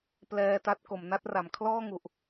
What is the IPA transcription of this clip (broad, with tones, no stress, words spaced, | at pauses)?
plɛː˧ta˦˥t̚ ko˩˦mna˦˥t̚ra˩˦m kʰlɔː˥˩ŋu˨˩ʔ